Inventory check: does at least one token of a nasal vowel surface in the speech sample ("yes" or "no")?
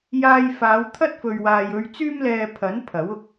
no